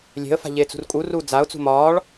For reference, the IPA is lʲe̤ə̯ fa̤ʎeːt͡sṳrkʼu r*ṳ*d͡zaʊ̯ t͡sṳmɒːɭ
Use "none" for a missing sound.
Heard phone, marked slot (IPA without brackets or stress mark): u